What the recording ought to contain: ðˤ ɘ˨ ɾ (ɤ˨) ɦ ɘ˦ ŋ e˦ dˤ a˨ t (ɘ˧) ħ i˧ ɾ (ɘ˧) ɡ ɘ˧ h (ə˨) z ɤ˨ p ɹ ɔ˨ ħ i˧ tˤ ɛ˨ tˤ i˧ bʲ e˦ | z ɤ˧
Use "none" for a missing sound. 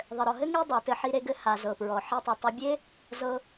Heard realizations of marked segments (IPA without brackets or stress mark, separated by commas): ɔ˨, ɘ˧, e˧, a˨